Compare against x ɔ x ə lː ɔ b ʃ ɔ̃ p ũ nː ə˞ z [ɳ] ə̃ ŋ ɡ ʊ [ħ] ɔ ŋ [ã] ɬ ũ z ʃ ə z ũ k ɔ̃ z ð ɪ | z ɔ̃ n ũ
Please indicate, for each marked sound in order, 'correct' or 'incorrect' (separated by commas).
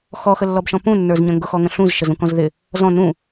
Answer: incorrect, incorrect, incorrect